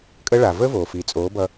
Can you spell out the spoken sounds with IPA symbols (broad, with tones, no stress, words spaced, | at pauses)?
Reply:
kʼə˦ɭa˨ vəː˦voː˨fiː˨ t͡sʼoː˨˦bʌ˧